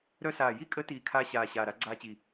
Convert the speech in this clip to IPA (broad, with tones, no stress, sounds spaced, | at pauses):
ɾ œ˥ s aː˧˩ j i˥ kʼ ə˧˥ t iː˧˩ kʰ aː˥ ɕ aː˧˩ ɕ aː˧˩ ɾ a˧˥ ɡ͡ǀ aː˥ t͡ɕ i˧˩